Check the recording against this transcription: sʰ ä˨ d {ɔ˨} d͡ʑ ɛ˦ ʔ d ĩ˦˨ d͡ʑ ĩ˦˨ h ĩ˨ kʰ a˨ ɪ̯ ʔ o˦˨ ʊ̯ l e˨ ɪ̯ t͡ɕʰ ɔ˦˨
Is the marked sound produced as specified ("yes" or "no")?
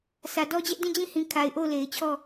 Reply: no